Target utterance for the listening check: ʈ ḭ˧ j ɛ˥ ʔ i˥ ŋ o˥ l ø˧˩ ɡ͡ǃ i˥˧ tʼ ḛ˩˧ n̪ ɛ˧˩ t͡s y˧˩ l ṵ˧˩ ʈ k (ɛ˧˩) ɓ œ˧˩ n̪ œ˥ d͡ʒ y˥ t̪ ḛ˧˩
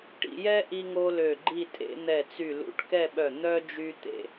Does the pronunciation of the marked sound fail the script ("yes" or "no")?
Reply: yes